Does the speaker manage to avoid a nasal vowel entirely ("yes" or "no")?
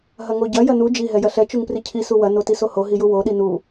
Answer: yes